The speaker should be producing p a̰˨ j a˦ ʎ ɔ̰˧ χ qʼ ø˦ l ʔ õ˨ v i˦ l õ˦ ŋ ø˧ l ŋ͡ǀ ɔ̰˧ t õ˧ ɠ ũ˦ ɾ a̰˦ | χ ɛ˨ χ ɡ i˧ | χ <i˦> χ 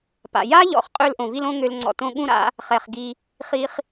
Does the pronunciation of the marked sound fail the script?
yes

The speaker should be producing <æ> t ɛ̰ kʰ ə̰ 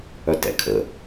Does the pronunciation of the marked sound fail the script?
yes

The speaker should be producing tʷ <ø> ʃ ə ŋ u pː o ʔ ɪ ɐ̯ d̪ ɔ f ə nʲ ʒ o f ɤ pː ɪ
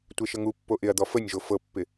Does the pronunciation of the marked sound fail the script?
yes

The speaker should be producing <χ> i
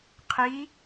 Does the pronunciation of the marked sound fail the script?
yes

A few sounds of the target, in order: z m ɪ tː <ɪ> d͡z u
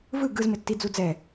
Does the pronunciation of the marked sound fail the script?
yes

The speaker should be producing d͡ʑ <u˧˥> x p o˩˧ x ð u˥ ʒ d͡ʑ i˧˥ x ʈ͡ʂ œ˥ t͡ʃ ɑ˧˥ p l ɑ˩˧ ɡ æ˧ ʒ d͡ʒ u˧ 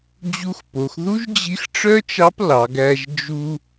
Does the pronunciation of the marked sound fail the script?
no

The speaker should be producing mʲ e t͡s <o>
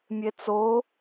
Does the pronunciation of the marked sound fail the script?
no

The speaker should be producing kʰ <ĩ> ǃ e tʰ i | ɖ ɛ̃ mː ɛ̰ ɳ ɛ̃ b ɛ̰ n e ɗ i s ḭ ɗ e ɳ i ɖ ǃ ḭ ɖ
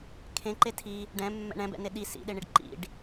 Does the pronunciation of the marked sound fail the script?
yes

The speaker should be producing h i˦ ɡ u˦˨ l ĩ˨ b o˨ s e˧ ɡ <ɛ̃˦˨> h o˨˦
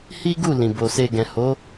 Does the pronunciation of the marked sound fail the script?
yes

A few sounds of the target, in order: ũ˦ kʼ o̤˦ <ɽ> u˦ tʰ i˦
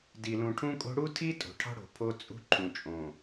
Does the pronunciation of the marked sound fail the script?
no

